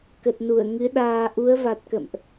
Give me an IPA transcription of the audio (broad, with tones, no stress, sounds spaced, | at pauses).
k ə˨˩ t̚ n u˧˩ ə̯ ŋ ɨ˨˦ ɗ aː˧ ʔ u˨˦ ə̯ v a˨˩ t̚ k ə̰˧˨ m ʔ